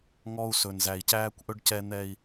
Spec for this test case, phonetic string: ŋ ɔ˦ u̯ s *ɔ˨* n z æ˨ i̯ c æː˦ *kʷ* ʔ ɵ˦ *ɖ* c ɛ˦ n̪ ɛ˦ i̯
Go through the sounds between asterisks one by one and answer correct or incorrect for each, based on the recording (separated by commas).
incorrect, correct, correct